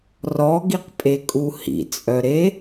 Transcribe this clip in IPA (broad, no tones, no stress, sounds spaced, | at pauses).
r ɔ ɡ i q pʼ e kʼ u h ḭ t͡sʼ œ ɾ e